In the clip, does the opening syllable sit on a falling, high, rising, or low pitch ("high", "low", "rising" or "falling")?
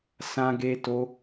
high